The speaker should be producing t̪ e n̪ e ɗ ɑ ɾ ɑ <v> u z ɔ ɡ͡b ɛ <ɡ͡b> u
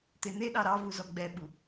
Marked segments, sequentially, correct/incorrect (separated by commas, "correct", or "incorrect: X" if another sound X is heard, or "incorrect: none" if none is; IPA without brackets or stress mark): correct, incorrect: ɓ